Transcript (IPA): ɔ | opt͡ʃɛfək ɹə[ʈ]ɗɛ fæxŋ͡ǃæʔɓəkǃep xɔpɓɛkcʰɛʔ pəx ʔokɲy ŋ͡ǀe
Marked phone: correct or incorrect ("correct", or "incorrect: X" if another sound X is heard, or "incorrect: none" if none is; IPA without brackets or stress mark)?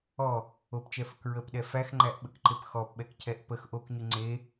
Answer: incorrect: p